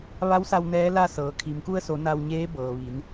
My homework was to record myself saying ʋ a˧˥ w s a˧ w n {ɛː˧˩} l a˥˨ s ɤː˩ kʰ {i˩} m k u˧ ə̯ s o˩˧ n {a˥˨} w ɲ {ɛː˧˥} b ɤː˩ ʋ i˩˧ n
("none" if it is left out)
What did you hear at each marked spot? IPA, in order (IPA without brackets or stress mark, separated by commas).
ɛː˧˥, i˩, a˧, eː˧˥